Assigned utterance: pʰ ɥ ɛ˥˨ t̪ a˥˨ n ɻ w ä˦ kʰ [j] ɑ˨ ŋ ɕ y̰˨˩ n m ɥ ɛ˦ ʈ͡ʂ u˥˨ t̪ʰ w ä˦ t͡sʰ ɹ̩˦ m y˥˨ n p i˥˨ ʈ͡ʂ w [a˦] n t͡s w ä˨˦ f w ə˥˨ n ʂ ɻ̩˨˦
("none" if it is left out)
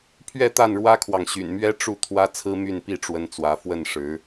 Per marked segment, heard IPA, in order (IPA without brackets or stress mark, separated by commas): w, ə˦